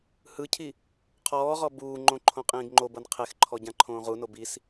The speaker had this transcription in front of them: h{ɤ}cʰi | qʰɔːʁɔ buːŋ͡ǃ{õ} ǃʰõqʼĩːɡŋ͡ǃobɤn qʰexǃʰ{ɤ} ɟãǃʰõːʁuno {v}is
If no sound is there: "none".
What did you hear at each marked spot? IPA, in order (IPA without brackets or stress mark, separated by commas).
ɯ, õ, ɔ, b